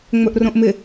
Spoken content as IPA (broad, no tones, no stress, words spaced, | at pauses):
ŋ͡mɵʔrõʔmɪ